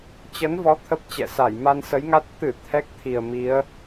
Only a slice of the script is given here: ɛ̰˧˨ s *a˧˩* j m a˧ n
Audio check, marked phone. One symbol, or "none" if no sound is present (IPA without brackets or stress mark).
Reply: a˧˩